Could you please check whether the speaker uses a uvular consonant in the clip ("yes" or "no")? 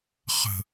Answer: yes